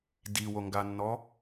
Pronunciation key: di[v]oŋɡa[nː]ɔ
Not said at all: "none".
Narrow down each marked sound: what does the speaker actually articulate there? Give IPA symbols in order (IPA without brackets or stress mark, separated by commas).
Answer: w, nː